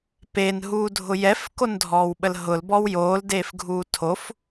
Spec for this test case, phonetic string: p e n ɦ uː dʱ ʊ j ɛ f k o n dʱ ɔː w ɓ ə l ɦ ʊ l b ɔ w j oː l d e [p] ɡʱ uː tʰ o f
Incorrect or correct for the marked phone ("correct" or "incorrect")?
incorrect